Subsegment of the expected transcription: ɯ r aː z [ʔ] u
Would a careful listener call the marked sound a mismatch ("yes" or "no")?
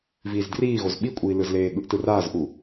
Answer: no